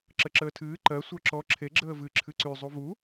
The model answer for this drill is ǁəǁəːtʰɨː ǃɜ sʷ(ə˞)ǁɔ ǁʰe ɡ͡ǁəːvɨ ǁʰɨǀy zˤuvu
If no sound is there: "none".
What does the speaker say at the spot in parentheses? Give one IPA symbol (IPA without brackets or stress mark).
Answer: ə˞